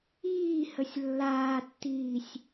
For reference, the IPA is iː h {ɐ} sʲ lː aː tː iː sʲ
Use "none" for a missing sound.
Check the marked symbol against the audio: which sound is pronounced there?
ə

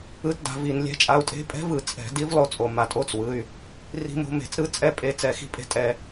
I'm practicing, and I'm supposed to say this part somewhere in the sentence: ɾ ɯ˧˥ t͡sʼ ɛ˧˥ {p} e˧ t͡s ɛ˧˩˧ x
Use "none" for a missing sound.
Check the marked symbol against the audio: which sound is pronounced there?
pʼ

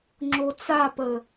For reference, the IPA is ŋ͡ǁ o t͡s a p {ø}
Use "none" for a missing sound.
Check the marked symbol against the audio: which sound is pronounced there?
ə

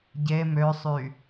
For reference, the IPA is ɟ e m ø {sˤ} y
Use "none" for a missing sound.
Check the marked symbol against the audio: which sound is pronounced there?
sˤ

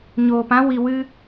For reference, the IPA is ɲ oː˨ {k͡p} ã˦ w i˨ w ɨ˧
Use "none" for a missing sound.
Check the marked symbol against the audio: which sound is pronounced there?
p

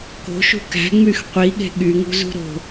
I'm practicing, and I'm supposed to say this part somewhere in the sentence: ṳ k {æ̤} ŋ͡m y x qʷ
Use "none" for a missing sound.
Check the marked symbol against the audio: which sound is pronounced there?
æ̤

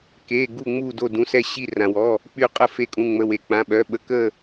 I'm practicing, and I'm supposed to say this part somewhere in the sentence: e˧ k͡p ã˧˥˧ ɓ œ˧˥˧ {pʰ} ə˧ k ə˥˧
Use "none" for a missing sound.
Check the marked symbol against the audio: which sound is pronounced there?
ɓ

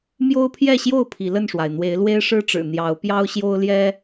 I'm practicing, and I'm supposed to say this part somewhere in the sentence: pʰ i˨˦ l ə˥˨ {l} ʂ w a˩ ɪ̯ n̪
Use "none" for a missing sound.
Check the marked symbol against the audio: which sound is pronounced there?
n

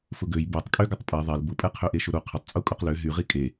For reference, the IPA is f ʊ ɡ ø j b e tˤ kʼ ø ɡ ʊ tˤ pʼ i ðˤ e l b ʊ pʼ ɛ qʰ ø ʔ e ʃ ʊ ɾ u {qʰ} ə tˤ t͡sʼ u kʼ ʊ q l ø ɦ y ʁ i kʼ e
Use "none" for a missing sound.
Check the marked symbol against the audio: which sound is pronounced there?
qʰ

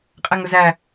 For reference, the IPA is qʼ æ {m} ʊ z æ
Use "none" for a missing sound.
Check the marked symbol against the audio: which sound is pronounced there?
ŋ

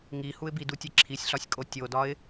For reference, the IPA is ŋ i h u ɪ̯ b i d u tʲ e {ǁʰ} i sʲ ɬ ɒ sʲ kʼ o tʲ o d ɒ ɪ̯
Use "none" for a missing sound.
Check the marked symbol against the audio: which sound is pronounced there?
ǁʰ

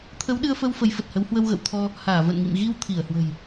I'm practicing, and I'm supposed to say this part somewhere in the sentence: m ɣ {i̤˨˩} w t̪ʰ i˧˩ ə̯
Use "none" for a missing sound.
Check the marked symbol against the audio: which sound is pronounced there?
i˧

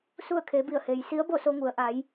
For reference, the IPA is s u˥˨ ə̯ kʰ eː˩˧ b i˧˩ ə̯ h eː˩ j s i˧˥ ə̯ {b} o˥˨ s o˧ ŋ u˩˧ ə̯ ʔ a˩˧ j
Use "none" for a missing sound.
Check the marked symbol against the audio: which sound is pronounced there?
b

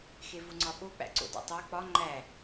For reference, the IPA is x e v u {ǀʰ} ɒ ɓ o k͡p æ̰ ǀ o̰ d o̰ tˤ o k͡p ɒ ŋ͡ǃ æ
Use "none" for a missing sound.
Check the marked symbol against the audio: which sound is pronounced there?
ŋ͡ǀ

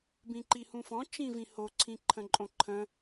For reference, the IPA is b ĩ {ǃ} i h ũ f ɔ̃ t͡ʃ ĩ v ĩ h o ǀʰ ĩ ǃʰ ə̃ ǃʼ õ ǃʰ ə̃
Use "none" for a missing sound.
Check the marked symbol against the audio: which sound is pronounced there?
ǃ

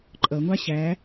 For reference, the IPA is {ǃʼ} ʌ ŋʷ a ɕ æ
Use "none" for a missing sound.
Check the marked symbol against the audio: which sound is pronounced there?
ǃʼ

